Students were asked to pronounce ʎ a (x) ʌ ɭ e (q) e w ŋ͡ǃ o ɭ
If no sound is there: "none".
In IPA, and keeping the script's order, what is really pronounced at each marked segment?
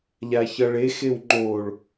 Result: ç, x

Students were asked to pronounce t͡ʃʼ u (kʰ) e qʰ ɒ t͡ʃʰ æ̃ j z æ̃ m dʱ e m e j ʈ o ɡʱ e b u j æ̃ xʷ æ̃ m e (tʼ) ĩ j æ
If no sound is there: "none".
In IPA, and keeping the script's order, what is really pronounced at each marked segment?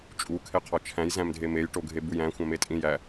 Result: kʰ, tʼ

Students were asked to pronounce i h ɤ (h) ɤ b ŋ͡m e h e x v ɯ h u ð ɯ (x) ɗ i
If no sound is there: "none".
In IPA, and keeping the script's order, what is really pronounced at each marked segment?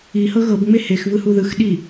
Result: ɣ, x

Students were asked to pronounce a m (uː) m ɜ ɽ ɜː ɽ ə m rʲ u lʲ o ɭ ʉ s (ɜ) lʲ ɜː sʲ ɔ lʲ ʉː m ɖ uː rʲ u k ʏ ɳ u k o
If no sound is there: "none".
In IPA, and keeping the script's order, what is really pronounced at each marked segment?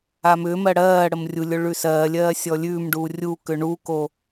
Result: ʏː, ɜː

